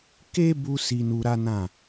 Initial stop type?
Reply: plain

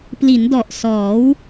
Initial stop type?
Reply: plain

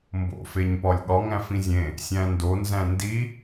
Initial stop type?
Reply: plain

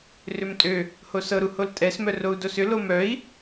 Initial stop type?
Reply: ejective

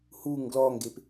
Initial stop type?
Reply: plain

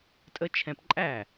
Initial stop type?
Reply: ejective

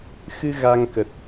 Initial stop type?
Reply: plain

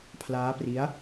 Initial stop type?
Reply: aspirated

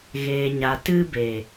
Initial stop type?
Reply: plain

